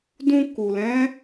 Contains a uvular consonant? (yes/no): no